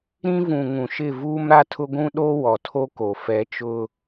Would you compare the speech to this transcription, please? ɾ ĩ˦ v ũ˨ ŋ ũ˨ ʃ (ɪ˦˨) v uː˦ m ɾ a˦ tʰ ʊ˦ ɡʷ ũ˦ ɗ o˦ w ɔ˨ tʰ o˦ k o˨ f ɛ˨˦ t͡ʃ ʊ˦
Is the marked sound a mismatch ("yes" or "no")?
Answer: no